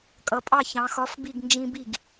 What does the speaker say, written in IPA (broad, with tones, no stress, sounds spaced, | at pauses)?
kʼ ʌ˩˧ pʼ ɑ˥˩ ç ɑ̃˩˧ x ɒ˨˥ f b i˥˩ ɡ n d͡ʒ ĩ˦ b i˥˩ ɡ